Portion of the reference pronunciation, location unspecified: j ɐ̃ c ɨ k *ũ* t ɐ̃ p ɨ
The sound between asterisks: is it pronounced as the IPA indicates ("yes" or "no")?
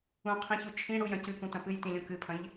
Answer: yes